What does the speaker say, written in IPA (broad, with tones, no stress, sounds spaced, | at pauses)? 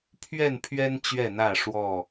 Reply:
pʰ ɥ ɛ˥˨ n pʰ ɥ ɛ˦ n t͡ɕ ɥ ɛ˥˨ n̪ ä˥˨ ʂ w ɔ˥˨